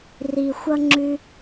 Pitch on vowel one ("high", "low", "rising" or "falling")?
low